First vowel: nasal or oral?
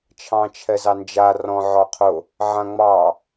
nasal